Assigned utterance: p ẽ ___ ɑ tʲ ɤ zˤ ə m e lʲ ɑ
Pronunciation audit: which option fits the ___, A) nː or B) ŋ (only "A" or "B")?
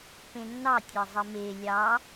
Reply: A